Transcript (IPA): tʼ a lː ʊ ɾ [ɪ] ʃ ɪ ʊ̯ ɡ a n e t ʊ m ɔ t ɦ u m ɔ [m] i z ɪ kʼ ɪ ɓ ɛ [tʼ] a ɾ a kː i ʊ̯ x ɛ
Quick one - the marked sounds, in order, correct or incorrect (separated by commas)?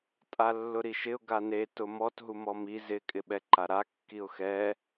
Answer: incorrect, correct, incorrect